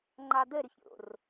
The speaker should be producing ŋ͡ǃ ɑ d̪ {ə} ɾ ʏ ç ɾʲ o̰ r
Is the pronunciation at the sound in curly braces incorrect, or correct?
correct